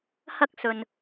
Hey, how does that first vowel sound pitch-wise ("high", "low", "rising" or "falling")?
high